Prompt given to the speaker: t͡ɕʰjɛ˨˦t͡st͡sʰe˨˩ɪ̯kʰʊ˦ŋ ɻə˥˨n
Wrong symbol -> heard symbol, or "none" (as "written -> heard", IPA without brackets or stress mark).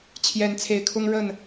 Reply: t͡s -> n